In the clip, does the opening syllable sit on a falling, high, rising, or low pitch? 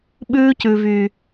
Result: high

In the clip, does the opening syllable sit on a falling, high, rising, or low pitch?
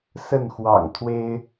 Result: falling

